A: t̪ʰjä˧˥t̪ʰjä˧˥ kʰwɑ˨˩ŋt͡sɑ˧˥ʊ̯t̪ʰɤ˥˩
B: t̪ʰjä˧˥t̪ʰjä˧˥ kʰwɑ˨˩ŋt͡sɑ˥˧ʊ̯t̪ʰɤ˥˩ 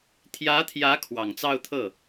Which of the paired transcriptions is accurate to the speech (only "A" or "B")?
B